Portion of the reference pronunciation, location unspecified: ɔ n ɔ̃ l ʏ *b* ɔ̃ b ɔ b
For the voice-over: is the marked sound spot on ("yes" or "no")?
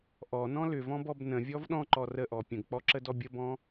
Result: no